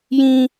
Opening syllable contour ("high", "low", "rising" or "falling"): high